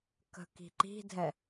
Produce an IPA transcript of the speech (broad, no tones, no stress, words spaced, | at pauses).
kə̤ki̤ǃi̤dʱɛ